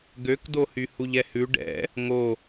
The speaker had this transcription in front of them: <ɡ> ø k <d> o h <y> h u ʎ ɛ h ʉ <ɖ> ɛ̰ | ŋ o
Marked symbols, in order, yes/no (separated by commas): yes, yes, yes, yes